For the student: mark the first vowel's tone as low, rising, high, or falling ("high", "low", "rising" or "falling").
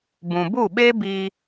low